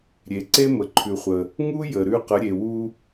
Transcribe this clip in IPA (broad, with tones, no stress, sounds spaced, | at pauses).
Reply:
ɾʲ e˩˧ ǀ e˥ m ə˩ ǃʰ ʉ˩ χʷ ə˩ | ŋ u˥ j ə˩ ɾ ʉ˧ q ə˩˧ ɾʲ e˩ w u˧